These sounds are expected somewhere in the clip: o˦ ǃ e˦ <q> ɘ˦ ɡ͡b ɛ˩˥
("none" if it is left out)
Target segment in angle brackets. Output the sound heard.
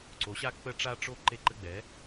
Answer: ǃ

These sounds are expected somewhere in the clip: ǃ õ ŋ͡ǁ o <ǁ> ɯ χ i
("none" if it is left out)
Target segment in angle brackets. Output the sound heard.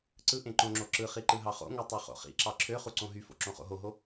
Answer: ǁ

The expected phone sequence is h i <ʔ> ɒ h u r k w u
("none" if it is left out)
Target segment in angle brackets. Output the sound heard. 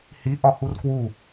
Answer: ʔ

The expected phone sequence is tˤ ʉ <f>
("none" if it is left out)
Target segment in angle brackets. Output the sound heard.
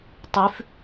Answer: f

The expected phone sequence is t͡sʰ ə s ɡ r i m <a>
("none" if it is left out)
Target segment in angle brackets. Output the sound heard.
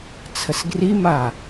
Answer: a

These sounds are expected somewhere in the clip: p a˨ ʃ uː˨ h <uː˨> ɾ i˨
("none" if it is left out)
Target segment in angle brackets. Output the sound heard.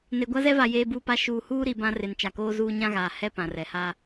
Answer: uː˦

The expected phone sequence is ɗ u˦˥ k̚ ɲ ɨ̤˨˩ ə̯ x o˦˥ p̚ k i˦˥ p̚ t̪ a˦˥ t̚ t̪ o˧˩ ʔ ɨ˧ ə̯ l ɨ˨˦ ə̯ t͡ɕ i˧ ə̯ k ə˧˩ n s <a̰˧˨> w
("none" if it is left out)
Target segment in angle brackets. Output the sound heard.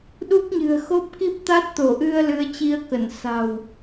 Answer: a̤˨˩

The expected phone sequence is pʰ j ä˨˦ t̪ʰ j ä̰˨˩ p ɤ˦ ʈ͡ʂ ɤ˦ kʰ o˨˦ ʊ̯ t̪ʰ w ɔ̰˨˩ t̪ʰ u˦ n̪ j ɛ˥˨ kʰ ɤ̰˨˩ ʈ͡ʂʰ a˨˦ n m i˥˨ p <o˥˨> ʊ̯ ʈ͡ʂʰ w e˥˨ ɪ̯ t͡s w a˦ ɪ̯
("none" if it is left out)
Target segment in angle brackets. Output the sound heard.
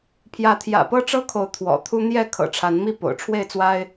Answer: o̰˨˩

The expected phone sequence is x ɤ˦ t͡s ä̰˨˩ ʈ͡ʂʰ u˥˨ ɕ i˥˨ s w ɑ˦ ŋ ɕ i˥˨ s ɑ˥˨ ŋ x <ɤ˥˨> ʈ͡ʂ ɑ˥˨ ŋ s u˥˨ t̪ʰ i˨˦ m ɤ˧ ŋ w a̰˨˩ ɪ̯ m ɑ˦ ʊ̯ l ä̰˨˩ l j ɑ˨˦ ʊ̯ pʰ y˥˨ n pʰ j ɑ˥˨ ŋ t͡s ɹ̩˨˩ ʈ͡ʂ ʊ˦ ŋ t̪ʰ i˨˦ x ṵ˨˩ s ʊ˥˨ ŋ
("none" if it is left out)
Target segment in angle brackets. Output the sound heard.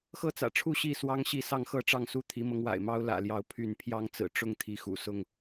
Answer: ɤ˥˨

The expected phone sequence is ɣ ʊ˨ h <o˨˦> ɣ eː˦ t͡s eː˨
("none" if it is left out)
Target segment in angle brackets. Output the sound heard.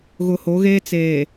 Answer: o˨˦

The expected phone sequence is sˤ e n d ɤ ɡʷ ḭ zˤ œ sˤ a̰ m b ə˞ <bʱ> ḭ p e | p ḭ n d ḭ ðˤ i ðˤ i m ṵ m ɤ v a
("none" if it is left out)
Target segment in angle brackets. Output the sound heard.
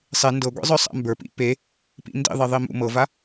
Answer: p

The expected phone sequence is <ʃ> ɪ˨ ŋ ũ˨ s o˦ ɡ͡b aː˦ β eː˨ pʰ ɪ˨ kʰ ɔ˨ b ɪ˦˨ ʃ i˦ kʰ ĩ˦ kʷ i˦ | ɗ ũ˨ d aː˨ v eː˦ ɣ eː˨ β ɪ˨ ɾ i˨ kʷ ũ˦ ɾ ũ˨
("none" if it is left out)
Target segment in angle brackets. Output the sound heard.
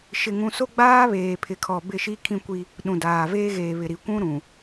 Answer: ʃ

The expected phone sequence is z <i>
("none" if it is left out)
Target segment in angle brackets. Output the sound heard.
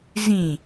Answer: ĩ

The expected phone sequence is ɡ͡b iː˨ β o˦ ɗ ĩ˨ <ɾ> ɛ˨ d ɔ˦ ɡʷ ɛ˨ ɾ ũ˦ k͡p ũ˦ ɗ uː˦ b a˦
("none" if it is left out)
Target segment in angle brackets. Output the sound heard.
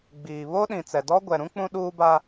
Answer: t͡s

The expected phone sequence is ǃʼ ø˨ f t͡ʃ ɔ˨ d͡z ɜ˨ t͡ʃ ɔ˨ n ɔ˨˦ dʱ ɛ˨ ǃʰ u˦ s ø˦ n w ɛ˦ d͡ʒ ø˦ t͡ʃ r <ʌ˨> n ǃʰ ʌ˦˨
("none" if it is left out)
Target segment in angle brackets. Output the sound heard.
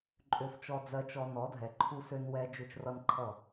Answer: ʌ˦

